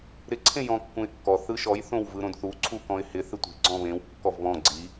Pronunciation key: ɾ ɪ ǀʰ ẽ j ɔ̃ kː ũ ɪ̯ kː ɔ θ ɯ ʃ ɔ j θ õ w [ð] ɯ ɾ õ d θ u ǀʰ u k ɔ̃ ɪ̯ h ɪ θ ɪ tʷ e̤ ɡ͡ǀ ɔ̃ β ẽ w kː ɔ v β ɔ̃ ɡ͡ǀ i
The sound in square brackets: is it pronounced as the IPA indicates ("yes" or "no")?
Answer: no